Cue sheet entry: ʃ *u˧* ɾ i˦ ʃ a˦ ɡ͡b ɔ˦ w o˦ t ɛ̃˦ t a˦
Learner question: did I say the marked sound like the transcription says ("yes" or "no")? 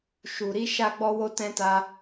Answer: yes